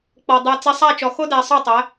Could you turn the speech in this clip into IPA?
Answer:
k͡p ɔ˨ dˤ ɛ˨ t͡s i˨ sˤ æ˦˨ t͡ʃ ɔ˨ x o˦ d æ˨ sˤ œ˦˨ tˤ æ˨˦

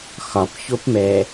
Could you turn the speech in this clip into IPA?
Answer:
x ɒ p ç o p m ɛ

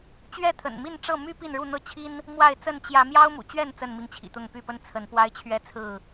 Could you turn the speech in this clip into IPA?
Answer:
t͡ɕ ɥ ɛ˥˨ t̪ʰ ə̰˨˩ n m i˥˨ n ʈ͡ʂ ɤ˥˨ m y˦ p i˥˨ n ɻ u˥˨ n̪ ɤ˥˨ t͡ɕʰ i˦ n | m w a˥˨ ɪ̯ t͡s ə˥˨ n t͡ɕ j ä˨˦ m j ɑ˦ ʊ̯ m ṵ˨˩ t͡ɕ ɥ ɛ˥˨ n t͡s ə˥˨ n m i˨˦ ŋ t͡ɕʰ ḭ˨˩ t̪ ʊ˥˨ ŋ p y˥˨ p ə˦ n t͡sʰ ə˨˦ n p w a˦ ɪ̯ t͡ɕʰ ɥ ɛ˥˨ t͡sʰ ɹ̩˥˨

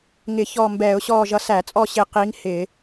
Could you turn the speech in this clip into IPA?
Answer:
ŋ ɪ˧˩˧ ç ɔː˦˨ m b ɛː˧˩˧ ʊ̯ ɕ ɔː˦˨ ʒ ʌ˧˥ s æ˧˩˧ t͡sʼ ɔ˦˨ ɕ ɪ˦˨ q i˧˥ ŋ h ɪ˧˩˧

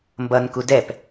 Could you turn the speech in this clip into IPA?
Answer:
m b ʌ n k u d ɛ p

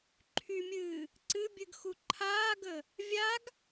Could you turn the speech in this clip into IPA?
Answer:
ǃʰ y mʲ ɨː | ǀ ɨ bʲ ɨ ɡ x u ǃʰ aː ɡ ə | vʲ a ɡ

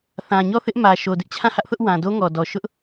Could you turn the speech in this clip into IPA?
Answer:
θ ã˨ ɲ ɔ˦˨ θ ɪ˦ ʔ m ä˨ ʃ o˨ d ɪ˦ ʔ t͡ɕʰ ã˦˨ h ä˦ ʔ θ ʊ˦ ʔ w ã˨ d o˦ ŋ ɔ˨ d ɔ˨ ʃ ʊ˦ ʔ

